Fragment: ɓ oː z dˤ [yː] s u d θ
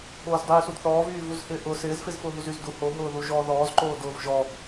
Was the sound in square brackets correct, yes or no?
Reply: yes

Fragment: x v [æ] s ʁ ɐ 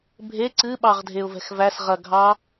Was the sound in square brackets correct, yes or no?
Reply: yes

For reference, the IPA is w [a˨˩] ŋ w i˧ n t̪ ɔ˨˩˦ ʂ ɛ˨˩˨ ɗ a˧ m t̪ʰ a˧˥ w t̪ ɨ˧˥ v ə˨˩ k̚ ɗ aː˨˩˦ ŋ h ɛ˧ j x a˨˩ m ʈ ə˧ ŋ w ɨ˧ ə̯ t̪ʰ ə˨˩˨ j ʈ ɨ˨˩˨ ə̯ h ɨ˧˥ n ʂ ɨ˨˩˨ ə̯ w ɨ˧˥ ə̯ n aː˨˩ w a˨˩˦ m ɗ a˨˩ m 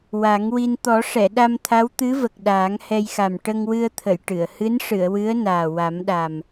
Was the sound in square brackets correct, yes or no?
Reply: no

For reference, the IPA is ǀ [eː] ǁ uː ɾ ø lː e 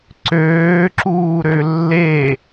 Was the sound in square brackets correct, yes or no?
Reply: no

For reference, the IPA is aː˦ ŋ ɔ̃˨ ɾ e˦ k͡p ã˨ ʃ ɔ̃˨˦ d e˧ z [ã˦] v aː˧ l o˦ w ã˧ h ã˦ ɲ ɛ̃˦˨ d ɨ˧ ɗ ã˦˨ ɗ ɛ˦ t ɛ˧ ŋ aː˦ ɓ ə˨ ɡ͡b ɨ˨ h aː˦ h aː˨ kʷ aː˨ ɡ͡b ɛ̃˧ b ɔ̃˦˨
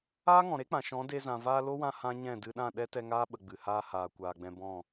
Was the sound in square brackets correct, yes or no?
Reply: no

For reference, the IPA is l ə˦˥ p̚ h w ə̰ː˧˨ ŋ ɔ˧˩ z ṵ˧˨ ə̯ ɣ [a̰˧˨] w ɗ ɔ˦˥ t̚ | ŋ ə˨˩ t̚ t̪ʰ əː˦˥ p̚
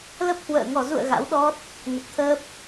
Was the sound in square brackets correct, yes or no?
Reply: no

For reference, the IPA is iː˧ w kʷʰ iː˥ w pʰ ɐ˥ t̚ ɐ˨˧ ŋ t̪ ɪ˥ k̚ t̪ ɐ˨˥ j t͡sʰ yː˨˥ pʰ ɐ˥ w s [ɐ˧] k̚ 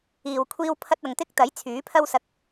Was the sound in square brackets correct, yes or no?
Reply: yes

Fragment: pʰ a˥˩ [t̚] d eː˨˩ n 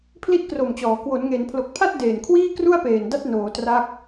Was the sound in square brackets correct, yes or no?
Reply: yes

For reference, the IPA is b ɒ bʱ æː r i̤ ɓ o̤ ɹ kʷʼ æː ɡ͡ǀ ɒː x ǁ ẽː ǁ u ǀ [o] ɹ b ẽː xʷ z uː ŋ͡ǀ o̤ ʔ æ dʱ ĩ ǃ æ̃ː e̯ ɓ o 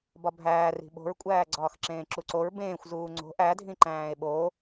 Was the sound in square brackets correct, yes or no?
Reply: yes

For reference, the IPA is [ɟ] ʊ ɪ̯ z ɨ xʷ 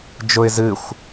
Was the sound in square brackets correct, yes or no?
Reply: no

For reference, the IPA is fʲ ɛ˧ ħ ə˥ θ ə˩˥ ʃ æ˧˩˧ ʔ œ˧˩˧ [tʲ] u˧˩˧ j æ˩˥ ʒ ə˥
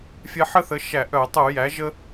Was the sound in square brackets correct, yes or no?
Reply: no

